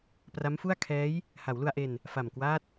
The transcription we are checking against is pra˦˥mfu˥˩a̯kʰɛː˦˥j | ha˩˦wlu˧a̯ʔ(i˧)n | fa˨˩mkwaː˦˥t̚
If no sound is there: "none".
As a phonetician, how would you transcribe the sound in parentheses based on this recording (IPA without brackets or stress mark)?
e˧